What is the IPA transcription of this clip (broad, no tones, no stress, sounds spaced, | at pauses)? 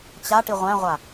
t͡ɕ a ʈ i ʁʷ æ̃ ʁʷ a